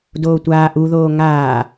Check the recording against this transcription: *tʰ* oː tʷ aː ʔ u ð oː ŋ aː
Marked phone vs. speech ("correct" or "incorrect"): incorrect